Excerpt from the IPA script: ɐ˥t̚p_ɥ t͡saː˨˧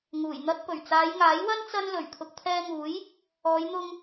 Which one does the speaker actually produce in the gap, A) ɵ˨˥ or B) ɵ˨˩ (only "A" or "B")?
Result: B